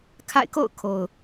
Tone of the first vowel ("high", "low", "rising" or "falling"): falling